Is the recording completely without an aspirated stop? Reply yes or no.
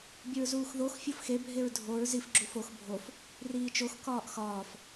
yes